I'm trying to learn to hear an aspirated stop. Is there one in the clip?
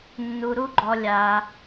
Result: no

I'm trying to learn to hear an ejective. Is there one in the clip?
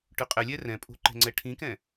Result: yes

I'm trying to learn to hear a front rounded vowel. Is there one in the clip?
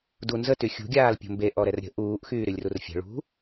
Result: yes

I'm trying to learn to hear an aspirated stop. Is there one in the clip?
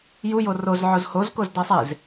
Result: no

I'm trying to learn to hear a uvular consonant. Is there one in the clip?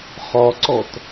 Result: yes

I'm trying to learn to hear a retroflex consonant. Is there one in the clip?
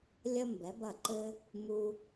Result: no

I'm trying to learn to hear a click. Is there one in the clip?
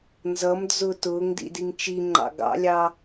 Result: yes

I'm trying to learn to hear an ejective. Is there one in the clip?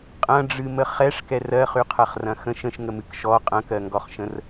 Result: yes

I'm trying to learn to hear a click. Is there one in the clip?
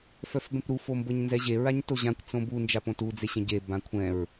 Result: no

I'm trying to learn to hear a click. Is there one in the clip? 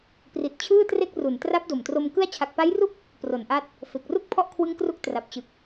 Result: no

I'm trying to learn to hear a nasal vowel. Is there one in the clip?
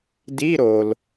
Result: no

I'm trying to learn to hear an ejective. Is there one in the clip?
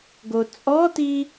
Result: yes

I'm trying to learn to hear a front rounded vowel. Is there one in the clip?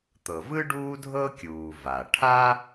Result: no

